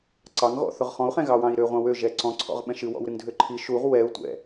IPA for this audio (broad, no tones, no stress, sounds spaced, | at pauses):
ǀ ɑ ŋ ɣ ɔ̰ θ ʊ ʁ χ ɔ̃ u̯ χ ɛ̃ ɣ ɑ w ɑ̃ i̯ ɾ ø ʁʷ ɑ̃ w ø ʒ ɛ ǀ ɔ̃ ǀʰ ɔ̰ ʁ ɓ ɛ̃ ʃ ɨ w ɔ̰ w ɾ ɨ ŋ dʱ ø ǃʰ i ʃ u ʁ w ɛ u̯ tʷ ɛ̰